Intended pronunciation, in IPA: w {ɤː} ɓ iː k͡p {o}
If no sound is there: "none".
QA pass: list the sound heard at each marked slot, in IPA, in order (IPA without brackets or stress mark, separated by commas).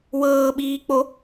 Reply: ɤː, o